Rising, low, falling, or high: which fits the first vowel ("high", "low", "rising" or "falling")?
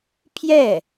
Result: falling